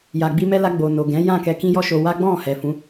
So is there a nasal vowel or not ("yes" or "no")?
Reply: yes